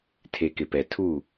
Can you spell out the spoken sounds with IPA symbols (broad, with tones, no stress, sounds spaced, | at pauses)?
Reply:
tʰ e˨ k ɪ˨ p ɛ˨ tʰ u˦˨